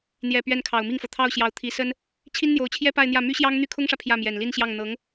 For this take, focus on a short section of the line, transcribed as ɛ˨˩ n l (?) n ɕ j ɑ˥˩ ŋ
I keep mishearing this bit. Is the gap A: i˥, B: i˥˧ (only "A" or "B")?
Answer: B